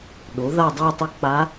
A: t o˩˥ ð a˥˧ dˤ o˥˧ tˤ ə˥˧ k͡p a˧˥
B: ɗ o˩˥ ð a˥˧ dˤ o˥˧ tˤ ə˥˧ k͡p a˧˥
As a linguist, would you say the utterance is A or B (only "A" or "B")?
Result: B